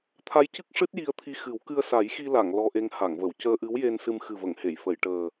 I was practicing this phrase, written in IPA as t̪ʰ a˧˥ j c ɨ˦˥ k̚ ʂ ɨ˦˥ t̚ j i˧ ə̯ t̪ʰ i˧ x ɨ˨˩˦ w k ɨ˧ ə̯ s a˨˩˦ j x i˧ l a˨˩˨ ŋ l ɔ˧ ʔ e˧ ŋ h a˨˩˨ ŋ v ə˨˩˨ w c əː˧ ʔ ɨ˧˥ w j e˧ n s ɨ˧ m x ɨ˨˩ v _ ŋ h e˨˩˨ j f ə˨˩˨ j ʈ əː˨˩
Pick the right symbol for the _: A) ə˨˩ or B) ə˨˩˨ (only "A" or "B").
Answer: B